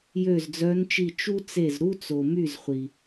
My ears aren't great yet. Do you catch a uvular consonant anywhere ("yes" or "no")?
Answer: yes